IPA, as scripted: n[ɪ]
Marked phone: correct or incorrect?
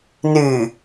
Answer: incorrect